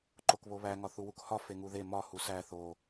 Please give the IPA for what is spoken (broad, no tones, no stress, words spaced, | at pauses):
ǃokβoβæ ŋɒθuwukhɒ feŋuðe mɒ husæ θo